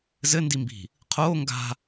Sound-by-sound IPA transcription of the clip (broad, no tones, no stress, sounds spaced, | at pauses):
z ɘ n d i m b i̤ | qʰ oː ŋ ɡ a̤